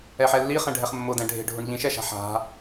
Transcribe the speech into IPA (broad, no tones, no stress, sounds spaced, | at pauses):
ɛ ħ ɛ lː i χ ɛ̃ ɖʱ ɛ χ mː ʊ d ɛ̃ ɖʱ e̤ ɖʱ ʊ ɳ ʎ ĩ ʃ ɛ ʃ a̤ ħ a̤